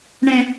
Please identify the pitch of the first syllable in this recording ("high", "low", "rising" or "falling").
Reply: high